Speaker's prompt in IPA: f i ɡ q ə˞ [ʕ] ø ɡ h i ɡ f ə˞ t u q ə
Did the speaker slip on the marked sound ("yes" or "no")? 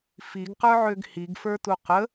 no